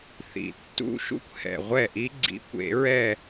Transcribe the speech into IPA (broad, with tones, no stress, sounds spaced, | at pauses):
θ ḭ˨˩ tː ṵ˦˥ ʃ ṵ˥˧ kʷ h ɛ̰˨˩ ʁʷ ɛ˥˩ ʔ i˦˥ ɡ͡ǀ ḭ˨˦ kʷ ḛ˨˩˦ ɹ ɛ˥˧